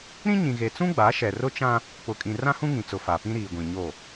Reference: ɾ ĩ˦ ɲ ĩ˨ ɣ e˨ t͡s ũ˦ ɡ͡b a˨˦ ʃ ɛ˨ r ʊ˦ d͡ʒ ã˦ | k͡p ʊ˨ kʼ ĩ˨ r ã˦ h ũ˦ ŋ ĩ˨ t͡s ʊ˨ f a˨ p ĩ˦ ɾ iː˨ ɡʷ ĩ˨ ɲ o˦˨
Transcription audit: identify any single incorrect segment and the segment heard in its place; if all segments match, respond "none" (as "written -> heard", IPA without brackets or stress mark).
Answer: d͡ʒ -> t͡ʃ